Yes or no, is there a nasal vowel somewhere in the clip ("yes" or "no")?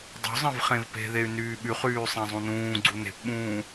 yes